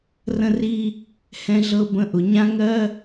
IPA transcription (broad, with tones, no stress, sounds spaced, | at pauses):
r ə̃˥ r i˥ | h ɛ̃˥ ɮ ɤ˥ b ə̃˥ ʔ ʊ˧ ɲ ã˥ ŋ ɜ˥